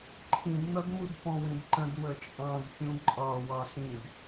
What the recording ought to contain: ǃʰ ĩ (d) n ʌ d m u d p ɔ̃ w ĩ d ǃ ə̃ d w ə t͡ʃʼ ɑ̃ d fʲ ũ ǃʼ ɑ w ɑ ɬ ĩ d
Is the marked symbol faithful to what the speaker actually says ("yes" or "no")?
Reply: yes